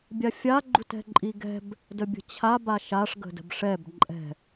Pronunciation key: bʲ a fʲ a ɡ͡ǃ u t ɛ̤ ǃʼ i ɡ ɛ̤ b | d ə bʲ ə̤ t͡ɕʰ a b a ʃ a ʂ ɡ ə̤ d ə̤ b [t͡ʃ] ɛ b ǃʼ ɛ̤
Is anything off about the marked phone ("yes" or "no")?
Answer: yes